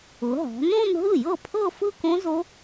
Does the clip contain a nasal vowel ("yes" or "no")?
yes